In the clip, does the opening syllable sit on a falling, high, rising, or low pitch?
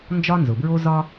high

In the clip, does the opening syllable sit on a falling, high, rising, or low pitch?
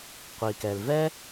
low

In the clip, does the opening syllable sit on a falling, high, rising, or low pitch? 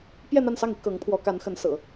falling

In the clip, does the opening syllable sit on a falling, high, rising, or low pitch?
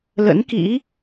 rising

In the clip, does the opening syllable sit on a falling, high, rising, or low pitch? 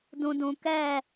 low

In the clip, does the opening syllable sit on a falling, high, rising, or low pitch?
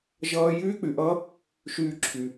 high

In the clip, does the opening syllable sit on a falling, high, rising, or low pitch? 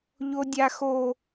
high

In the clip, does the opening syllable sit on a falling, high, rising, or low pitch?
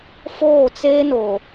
falling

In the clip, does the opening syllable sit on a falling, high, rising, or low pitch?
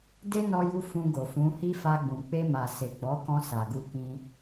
high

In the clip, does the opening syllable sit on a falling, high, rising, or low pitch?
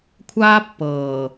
high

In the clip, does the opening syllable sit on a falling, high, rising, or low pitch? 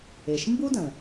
low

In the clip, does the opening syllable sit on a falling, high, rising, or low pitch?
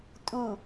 low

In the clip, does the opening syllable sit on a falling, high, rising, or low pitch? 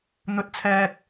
low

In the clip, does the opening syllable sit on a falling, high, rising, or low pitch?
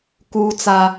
high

